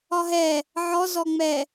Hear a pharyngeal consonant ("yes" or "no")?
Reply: yes